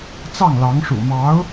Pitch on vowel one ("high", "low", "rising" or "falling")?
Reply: falling